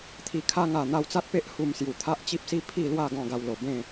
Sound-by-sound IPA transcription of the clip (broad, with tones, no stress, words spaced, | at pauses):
t̪ʰi˨˩kʰa˧ŋa˨˩ n̪a˧wt͡sa˦t̚pe˦ʔ hu˧msju˨˩ t̪ʰa˦ʔt͡ɕi˦p̚si˦ pʰi˥˧lwa˥˧ ɡɔ̃˥˧ɡa˧wlo˨˩ bẽ˥˧